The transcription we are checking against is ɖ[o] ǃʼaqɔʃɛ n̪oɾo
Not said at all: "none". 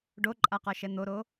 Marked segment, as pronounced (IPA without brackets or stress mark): o